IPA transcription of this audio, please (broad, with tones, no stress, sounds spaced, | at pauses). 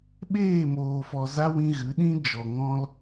ɓ eː˦˨ m oː˨ f ɔ˨ z a˦ w ĩ˧ ɣ ɨ˨˦ ɗ ĩ˦ d͡ʒ ɔ˨ ŋ ɔ̃˦ l